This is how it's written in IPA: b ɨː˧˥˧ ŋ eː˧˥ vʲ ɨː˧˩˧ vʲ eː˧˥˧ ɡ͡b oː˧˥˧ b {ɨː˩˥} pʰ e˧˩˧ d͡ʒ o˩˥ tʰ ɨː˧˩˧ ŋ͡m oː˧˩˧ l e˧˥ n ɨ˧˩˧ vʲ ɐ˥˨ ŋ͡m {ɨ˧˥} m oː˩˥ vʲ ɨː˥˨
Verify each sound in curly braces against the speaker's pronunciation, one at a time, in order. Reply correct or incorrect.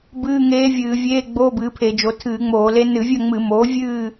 correct, incorrect

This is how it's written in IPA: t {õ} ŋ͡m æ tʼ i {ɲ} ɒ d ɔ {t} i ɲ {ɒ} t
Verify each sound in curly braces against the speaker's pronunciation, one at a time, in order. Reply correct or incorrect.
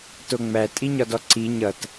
incorrect, correct, incorrect, incorrect

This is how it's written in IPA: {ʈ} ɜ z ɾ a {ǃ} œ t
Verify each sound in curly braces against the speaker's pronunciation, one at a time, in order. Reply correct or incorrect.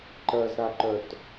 incorrect, correct

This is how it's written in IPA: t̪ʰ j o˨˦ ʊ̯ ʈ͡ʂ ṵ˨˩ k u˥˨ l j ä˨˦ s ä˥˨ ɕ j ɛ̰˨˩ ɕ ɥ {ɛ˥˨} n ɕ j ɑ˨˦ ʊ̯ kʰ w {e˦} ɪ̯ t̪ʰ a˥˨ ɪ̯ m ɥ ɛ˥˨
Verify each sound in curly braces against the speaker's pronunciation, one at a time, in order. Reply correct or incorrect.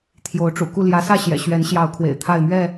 incorrect, incorrect

